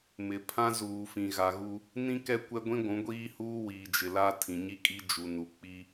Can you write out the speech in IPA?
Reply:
mɪ˨ pʰã˦zuː˨fĩ˨ ɣa˨ɣu˦ | nĩ˦ kɛ˦ kʷɛ˦ɡʷĩ˦ ɡʷũ˨˦ɡʷiː˦huː˦ wiː˨ d͡ʒɪ˨la˦ tʰĩ˨ɲi˦kʼi˦d͡ʒu˨ nu˨k͡pi˦

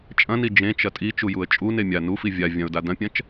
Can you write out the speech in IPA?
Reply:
t͡ʃʼɐ̃ni d͡ʒẽt͡ʃɐ tʼit͡ʃujuə̯ t͡ʃʼune mʲa nufi vʲa vʲɐ̃ʊ̯da dɐ̃pʲɐ̃t͡ʃ

